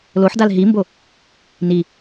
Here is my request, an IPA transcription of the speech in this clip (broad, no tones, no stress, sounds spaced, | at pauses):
l o ħ d a l ɦ i m b o | n i